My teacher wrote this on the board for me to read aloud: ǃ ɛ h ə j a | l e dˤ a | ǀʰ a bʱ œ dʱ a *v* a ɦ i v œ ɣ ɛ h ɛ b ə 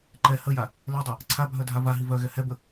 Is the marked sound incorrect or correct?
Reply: correct